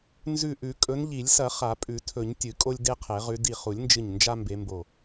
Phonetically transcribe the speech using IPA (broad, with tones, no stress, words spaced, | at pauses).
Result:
nzʉ˧˩ʔʉ˨˩˦ kʼɵ˨˦nʎi˨˩˦lʲsɐ˨˩˦ χa˨˩˦pʼʉ˨˩˦tʰɵ˨˩˦ɲ tʲɨ˨˩˦ kʼo˦lʲde˦qʰe˨˩˦ʁʉ˨˦ di˧˩χu˨˩˦lʲnd͡ʒɨ˧˩ɲ nd͡ʒa˦mbe˨˦mbo˧˩